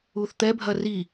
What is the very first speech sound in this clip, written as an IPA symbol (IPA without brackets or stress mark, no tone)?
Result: u